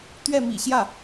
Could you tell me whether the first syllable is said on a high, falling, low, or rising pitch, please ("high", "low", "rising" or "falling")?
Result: falling